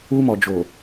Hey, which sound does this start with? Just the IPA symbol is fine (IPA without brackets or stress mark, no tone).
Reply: u